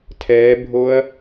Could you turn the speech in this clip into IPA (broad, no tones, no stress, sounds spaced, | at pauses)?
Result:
tʰ ɛː bʱ o ɐ̯